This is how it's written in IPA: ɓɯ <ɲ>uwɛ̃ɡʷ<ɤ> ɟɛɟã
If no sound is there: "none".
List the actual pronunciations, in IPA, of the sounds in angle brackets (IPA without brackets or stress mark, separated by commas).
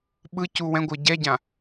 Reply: c, ɤ